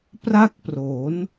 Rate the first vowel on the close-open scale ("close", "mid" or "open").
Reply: open